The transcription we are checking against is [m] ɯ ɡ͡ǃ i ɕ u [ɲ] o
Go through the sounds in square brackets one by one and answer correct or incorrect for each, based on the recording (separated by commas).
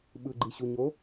incorrect, correct